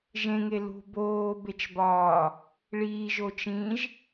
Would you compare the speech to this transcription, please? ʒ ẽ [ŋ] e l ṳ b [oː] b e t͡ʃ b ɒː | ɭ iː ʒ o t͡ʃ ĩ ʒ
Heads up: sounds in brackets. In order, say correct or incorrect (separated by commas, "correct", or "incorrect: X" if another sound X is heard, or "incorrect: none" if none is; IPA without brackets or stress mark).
correct, correct